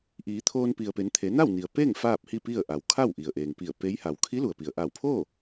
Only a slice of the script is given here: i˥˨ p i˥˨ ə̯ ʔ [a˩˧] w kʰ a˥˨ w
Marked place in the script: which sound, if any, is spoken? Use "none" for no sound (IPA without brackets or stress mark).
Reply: a˩˧